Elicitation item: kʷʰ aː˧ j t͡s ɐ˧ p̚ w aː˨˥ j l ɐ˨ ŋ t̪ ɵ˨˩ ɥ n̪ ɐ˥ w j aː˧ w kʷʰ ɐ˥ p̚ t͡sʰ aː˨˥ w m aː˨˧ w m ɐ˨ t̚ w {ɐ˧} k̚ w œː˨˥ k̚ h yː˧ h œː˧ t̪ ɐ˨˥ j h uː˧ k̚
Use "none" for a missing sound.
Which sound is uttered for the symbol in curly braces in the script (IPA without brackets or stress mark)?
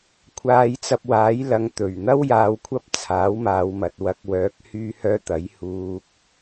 ɐ˧